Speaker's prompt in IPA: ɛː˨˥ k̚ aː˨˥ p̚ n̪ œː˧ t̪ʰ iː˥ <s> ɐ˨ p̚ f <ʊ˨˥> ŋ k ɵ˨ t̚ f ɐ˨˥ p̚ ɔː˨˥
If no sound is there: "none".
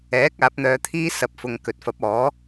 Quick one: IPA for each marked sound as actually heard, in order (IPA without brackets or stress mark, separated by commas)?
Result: s, ʊ˨